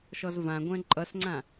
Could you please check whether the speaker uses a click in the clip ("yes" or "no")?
yes